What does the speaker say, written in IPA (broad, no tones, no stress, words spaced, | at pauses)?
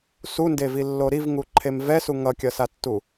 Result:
sundevilːo ɾivŋuǃʰem vɛsu ŋʌkʲʌsatːu